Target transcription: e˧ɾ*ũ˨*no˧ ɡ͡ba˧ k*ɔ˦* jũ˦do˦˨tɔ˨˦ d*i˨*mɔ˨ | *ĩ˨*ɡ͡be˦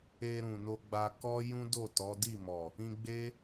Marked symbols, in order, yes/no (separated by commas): yes, yes, no, no